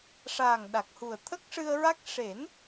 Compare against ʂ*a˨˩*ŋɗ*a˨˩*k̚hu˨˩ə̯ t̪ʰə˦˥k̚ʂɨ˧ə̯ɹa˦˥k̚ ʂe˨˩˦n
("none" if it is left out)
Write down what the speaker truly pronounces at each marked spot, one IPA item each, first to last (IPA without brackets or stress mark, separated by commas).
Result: aː˨˩, a˨˩